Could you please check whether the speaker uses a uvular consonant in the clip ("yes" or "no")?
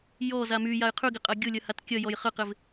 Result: yes